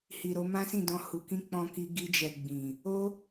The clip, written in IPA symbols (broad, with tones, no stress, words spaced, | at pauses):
hi˨ɾo˧ mã˦sĩ˦˨dɔ̃˧ hu˨ kĩ˧ k͡pɔ̃˧ki˧ ɡi˧d͡ʒɛ˨ ɡ͡bĩ˨ | o˦